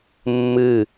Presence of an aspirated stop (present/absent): absent